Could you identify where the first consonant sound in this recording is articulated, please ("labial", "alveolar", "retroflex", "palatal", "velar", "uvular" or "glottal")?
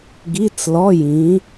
velar